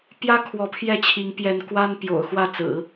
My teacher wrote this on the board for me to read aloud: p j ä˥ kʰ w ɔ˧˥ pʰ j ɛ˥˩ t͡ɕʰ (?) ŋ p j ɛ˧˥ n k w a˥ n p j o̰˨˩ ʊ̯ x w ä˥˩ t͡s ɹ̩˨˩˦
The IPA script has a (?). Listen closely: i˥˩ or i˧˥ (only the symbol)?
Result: i˧˥